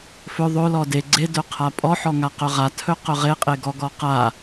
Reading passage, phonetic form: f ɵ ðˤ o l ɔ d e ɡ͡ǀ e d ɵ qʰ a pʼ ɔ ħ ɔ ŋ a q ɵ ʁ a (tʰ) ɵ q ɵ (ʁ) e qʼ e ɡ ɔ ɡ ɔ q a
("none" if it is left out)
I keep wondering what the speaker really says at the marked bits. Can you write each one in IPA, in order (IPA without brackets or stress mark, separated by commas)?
tʰ, ʁ